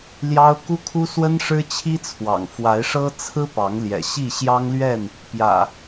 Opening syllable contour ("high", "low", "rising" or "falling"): high